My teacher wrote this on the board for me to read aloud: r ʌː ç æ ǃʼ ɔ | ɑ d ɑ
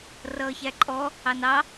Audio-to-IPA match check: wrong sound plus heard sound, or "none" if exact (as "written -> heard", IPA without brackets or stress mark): d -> n